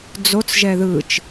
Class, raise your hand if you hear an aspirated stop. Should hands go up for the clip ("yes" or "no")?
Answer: no